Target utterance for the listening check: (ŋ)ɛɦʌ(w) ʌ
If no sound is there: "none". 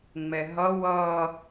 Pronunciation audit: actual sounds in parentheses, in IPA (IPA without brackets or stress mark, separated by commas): ŋ͡m, w